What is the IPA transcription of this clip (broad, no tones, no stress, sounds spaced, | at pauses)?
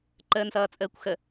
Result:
ǃ əː n s ʌː t͡sʼ əː kʷ x ə